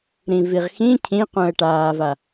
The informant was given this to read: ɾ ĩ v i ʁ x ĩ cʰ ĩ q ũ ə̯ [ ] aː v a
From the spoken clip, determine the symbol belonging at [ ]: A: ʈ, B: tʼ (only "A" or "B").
A